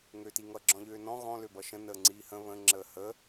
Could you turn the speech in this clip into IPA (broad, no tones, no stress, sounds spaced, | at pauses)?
ŋ ø t i ŋ ʌ ɡ͡ǁ ɔ̃ ʎ øː n ɔ̃ ɣ ɔ̃ l ø b ʌ ʃ ə̃ n əː ŋ͡ǀ iː h ə̃ β ə̃ ŋ͡ǁ əː h ə